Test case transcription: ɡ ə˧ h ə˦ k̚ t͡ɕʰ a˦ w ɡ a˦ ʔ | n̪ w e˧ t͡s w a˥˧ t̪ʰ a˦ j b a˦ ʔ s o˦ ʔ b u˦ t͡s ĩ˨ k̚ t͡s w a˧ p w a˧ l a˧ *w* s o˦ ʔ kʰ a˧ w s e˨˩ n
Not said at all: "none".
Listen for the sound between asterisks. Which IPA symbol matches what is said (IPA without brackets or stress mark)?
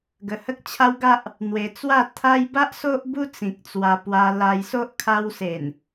j